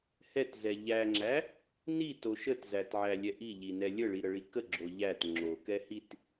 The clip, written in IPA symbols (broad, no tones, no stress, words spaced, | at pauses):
hɛtzɛ ʎæŋ͡ǁæ | nito ʃətzætʕælʲɛ ʔiʎinɛ lʲəɭiɾəɭi kəɡ͡ǁo ʎæt ŋ͡ǁokɛ hit